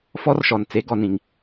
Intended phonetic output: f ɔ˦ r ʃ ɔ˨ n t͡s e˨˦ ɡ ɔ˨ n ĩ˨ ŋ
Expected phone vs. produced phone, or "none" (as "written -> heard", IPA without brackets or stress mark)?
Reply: none